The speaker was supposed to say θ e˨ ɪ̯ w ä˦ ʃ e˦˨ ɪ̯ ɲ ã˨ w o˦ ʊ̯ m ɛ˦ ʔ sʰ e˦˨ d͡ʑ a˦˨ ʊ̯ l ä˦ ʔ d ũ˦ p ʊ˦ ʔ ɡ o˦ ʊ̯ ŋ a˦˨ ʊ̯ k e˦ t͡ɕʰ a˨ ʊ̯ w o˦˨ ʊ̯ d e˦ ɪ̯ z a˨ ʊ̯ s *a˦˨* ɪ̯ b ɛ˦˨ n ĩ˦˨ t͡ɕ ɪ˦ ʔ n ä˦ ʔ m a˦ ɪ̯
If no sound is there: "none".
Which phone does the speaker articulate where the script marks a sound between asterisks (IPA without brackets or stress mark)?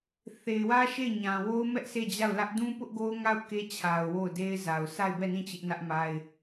a˦˨